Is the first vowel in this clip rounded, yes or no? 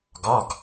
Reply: yes